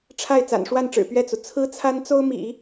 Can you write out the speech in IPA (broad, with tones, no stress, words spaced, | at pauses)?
ʈ͡ʂʰa˥˩ɪ̯ t͡sa̰˨˩nʂwa˥˩nʈ͡ʂɻ̩˨˩ pɥɛ˥˩t͡su˩ t͡sʰɹ̩˥t͡sʰa˥nt͡so˥ʊ̯mḭ˨˩˦